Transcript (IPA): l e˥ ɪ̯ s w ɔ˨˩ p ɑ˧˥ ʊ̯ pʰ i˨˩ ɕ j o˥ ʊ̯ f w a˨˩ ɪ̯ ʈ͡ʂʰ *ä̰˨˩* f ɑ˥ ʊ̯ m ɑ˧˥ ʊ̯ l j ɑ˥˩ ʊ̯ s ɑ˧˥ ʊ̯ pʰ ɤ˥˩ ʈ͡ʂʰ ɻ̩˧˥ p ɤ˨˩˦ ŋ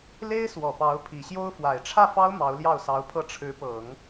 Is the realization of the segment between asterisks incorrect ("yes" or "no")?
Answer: yes